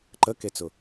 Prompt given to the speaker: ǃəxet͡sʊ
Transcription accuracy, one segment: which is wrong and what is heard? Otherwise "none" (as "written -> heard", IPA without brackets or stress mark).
x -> k